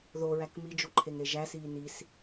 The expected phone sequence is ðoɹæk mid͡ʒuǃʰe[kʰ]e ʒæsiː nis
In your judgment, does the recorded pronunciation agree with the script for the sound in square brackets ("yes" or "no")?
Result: no